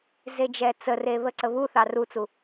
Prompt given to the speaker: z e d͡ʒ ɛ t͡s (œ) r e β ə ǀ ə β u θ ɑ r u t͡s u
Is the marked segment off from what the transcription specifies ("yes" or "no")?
yes